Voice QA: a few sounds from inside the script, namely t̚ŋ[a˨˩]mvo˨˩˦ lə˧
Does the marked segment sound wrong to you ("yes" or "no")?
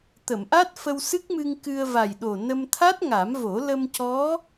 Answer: yes